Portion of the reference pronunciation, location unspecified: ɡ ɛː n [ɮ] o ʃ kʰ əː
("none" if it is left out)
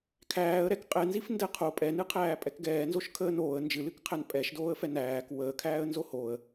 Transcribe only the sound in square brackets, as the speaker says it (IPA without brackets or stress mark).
z